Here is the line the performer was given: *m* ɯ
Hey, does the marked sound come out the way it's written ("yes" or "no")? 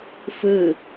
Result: no